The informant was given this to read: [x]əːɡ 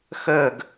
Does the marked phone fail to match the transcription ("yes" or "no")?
no